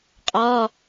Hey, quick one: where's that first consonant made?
uvula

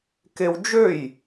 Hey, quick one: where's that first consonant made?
velum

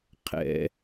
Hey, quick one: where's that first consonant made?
uvula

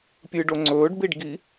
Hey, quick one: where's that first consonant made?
lips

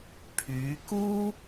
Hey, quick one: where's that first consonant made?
lips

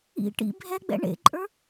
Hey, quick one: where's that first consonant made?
retroflex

